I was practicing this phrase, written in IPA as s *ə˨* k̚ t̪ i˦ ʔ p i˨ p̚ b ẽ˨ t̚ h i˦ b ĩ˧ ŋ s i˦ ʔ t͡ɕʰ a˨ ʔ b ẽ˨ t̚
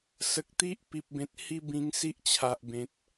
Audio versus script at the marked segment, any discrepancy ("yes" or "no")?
no